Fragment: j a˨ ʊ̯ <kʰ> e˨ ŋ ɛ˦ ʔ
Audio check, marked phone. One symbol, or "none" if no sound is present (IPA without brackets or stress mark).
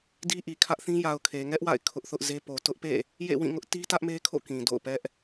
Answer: kʰ